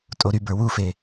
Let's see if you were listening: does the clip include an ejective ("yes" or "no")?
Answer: yes